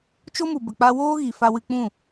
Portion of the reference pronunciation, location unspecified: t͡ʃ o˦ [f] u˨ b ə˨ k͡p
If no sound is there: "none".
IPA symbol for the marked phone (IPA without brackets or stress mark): m